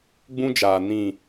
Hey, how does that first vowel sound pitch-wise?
high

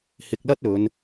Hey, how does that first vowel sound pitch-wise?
low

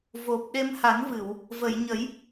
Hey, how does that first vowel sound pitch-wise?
low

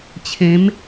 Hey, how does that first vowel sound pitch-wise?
rising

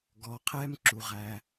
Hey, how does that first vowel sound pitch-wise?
low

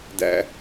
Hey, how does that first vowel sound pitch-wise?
low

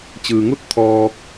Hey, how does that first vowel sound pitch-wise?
low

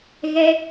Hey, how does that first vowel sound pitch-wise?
high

